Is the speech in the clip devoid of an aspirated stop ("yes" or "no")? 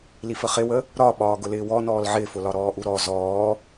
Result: yes